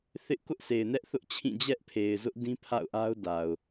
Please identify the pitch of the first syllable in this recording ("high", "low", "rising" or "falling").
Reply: high